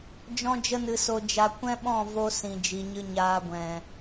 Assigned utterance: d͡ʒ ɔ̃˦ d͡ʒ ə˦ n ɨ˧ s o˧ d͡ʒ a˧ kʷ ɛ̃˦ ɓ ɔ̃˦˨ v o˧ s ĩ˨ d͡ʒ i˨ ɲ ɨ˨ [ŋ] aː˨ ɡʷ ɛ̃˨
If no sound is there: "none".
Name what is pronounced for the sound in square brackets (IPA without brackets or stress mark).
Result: ɲ